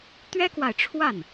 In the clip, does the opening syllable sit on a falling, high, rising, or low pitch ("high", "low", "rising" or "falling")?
high